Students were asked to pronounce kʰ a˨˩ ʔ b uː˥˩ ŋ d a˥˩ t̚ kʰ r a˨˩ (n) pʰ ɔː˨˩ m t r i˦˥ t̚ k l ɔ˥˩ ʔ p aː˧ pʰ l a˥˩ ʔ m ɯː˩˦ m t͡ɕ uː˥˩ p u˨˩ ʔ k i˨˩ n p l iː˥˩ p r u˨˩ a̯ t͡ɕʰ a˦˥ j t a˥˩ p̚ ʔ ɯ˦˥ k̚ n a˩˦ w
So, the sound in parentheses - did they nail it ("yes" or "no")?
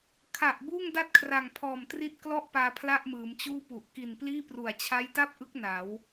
no